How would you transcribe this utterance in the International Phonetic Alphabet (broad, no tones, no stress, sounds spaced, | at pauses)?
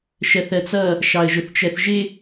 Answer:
ʃ ɜ θ ɜ t͡s ʌ | ʃ ɑ ə̯ ʒ ʊ θ t͡ʃ ɜ θ ʒ ɪ